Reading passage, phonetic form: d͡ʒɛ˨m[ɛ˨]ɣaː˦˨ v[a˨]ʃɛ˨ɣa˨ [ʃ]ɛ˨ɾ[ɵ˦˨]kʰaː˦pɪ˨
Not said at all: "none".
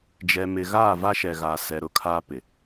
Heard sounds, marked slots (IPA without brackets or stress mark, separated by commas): ɪ˨, a˦, s, ʊ˦˨